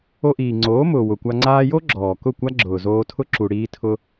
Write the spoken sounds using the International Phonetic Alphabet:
o˧ʔiː˨ ŋ͡ǀoː˨˦mʊː˨wʊ˨kʷa˧ ŋ͡ǀaː˧jo˦ ɡ͡ǁɔː˨kʊ˦˨ kʷa˦ɡ͡ǁʊː˨zoː˧tʰʊ˦ ǁu˨ ɽiː˦tʰʊ˦

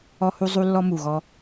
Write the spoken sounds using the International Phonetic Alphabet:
ɔ˧hu˧ zˤu˦lːɔ˦mu˨ɣɔ˧

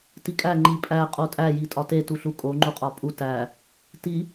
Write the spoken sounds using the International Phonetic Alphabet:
tikʼæ ŋ͡ǃi pʼæ qʼotʼæ jitʼɒte tuɬukʼo ŋ͡ǃuqʼɒpʼu tæ | ti

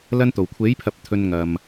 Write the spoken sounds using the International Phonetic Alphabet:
lɐ˧nt̪o˨˩wkʷʰe˨˥jpʰɐ˨p̚ t̪ʰɵ˨n ŋɐ˨m

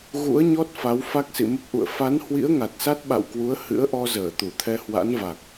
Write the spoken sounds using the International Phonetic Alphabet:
ɣṵ˧˥ə̯ɲɔ˦˥t̚ fa˨˦wfa˦˥k̚sḭ˧˨ mə˦˥p̚ʔṵ˧˨ə̯ fa˨˦nhwḭ˧˥ə̯ ŋa˨˩t̚sa˦˥t̚ɓa̰˧˨wkwu˨˦ə̯ hɨ̰˧˥ə̯ʔɔ˧ zəː˧˩t̪u˧˩t̪ʰɛ˧ hwa̰˧˥nva˨˩k̚

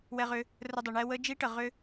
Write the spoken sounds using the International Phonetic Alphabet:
wɛ˧ʁʏ˧ | rə˧dˤə˨ɳɛ˦ wə˦ d͡ʒi˦ʈə˨ ʁʏ˦

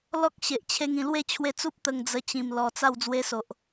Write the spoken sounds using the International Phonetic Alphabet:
lɔ˦k̚ ɕe˨ʔt͡ɕʰe˧ŋ ĩ˨˩lwe˥˧t͡ɕʰwe˧t͡su˦p̚ t̪ə˧ŋd͡zə˧ t͡ɕĩ˨˩mlɔ˨˩ t͡sa˥˧w d͡zwe˧so˨ʔ

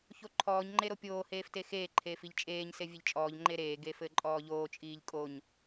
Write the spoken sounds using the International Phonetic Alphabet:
çoǃʰɔːɲ ŋ͡ǃeɾopʲoː heːftexeː ǃʰeːfiʎt͡ʃʼeːɲ sevʲeʎt͡ʃʼɔːʎ ŋ͡ǃeɾeː ɡefɘːǃʼɔːʎoː t͡ʃʼiːʎkʼoɲ

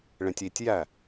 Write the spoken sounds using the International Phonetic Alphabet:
ɭẽtʲitʲjæ

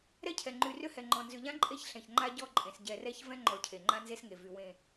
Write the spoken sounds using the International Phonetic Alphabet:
ɾɛ˦cʰɛ˨ ŋ͡ǃy˨rʏ˦hɛ˨ŋ͡ǃɔ̃˨ nzʏ˨ʎã˦ǃʼe˦˨ç ɬɛ̃˨çŋ͡ǃa˦ ɟɔ˦˨ǃʼẽ˨s ɟɛ˨rɛ˦ç vɛ̃˦ŋ͡ǃɔ˨ cʰe˨ŋ͡ǃã˦nze˦sŋe˨ vy˨wẽ˦˨

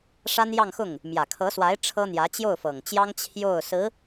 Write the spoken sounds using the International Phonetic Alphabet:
ʂa˥njɑ˥˧ŋxʊ˥˩ŋ | mjä˨˩kʰɤ˧˥swa˧˥ɪ̯ ʈ͡ʂʰɤ˥n̪jä˧˥ t͡ɕjo˥˩ʊ̯fɤ˨˩ŋt͡ɕjɑ˥ŋ t͡ɕʰjo˥˩ʊ̯ sɹ̩˧˥

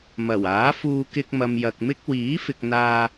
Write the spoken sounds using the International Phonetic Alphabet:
mɐ˨˩waː˨˥fuː˧ kɪ˧k̚mɐ˨m jɐ˨k̚mɪ˥k̚ wiː˨˥fɪ˨k̚n̪aː˧

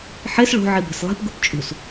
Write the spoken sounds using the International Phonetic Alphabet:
ħes ɭo̤ ʕibe̤slˠe̤p ɡupt͡ʃʼṳs

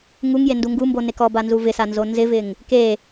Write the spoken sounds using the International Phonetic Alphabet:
ŋuŋ jenduŋɡumbo nekɔba nzuvɪsa nzonzɪvɪŋ | ke

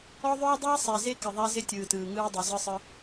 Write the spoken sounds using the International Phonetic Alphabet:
ɔ˦ðˤɵː˦dˤiː˦ sˤɛ˨ze˦ kɪ˨ðˤa˦ zɪ˦tʲɯː˨tɯː˨ ŋɯː˦dˤɵ˨ zɯ˦sˤɯ˦

